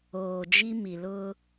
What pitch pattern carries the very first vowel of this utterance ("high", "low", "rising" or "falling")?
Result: low